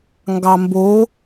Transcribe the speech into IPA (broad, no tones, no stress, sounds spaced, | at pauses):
ŋ ɡ ɑ m b o